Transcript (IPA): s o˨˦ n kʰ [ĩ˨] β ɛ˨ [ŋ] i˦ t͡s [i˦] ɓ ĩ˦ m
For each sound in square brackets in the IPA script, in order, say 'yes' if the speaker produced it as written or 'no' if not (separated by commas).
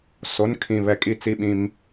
yes, no, yes